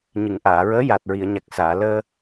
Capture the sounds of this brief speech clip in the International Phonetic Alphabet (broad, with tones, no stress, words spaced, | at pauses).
ɲɨ˨˩˨ŋʔaː˨˩˨ɹəː˧˥ ja˨˩t̚ɹi˨˩˨ə̯ɲa˨˩k̚ saː˨˩˨ ləː˧